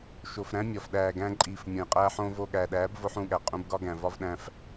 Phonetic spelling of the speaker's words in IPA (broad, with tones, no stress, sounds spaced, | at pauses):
ʃ o˨ f ɾ æ̃˦ mʲ ɒ˨ f ɗ æː˨ ɡ æ̃˧ ǃʼ iː˨ f mʲ õ˨ j qʼ æː˦ ħ õː˦ v o˧ ɠ æ˨ ɗ æː˨˦ b v o˧ ħ ũ˦˨ ɠ æ˨ qʼ ũ˧ b ɡ ɒ˦ ɡ æ̃˨ v ɒ˦ v ɗ æ̃˧ f